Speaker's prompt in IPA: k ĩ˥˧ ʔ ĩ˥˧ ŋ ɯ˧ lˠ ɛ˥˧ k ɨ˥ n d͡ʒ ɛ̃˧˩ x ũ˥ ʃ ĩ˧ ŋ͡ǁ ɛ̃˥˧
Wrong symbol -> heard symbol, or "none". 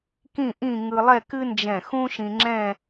none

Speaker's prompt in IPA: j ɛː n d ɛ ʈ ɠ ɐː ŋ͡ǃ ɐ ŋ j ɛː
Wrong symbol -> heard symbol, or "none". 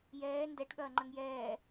none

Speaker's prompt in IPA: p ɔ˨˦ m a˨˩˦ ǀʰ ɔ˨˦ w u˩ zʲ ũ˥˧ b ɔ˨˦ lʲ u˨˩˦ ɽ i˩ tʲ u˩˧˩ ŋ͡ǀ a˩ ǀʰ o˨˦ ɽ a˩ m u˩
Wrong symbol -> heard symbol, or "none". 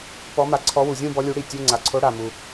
none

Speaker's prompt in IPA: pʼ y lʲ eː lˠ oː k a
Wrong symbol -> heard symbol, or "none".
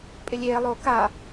y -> ɪ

